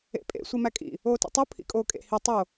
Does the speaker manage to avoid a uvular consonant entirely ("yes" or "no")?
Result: yes